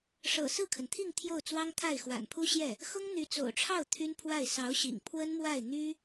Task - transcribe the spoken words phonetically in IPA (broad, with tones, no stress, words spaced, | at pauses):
ʂɤ̰˨˩sɹ̩˥˩kʰə˩nt̪ʰi˥˧ŋ t̪ʰjo˥˩ʊ̯t͡swɑ˥ŋt̪ʰa˥˩ɪ̯ xwa̰˨˩npʰu˥ɕjɛ˥˩ | xʊ˥ŋn̪y˧˥ t͡so̰˨˩ʊ̯ʈ͡ʂʰɑ˥˩ʊ̯ t̪ʰy˥npʰwa˥˩ɪ̯ sɑ˧˥ʊ̯ɕḭ˨˩ŋ pʰwə˥nmwa˥˩ɪ̯n̪y˥